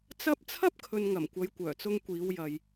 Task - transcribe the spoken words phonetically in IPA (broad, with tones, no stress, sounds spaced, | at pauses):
t͡s ɐ˥ p̚ t͡sʰ ɐ˥ p̚ kʰ ɵ˨ n ŋ ɐ˨˩ m kʷ ɐ˨˧ j kʷ œː˨˩ t͡s ʊ˧ ŋ kʷ iː˨˧ w j ɐ˨ j